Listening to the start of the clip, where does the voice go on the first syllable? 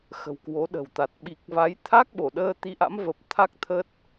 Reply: low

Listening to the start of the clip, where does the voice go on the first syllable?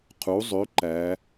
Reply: rising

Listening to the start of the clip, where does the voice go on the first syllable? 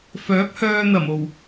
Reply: rising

